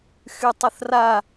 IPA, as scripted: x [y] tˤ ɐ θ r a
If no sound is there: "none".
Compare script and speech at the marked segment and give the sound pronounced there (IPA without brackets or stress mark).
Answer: y